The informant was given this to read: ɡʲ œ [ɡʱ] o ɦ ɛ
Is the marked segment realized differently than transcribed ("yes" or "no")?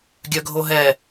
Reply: no